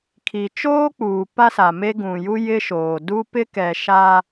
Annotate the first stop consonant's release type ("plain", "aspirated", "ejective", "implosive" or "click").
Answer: aspirated